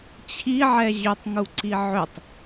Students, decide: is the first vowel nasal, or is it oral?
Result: oral